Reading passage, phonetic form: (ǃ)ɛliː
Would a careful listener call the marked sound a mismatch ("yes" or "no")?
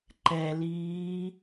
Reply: no